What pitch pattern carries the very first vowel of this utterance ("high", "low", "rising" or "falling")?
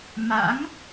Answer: rising